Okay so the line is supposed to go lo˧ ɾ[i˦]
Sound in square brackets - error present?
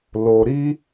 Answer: no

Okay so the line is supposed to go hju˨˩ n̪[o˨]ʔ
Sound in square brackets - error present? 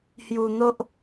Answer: yes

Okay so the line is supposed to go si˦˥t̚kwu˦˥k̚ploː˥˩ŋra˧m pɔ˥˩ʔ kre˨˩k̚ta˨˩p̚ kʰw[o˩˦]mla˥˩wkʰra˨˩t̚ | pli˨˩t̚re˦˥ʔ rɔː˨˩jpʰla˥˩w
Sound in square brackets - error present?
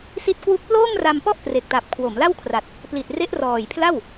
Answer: no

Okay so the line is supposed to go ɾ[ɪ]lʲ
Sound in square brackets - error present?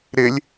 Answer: no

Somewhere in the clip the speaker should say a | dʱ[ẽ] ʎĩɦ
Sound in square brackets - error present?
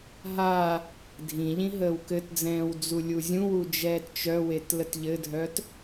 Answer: yes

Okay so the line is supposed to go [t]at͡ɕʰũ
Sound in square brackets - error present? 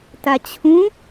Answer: no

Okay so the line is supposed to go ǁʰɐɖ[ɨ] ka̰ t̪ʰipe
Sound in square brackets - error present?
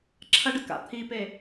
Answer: no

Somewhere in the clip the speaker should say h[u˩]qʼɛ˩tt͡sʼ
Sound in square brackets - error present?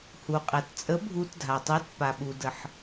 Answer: no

